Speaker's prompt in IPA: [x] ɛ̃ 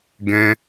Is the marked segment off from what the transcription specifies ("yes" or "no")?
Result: yes